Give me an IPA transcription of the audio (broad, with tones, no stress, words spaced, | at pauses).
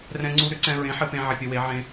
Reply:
rɛ̃˧ŋ͡ǀu˧ɾʏ˨˥ǀɛ̃˧ ɹẽ˨˥ħɘ˧pẽ˧ ʕɪ˧pʲɘ˧we˨˥ ʕẽ˧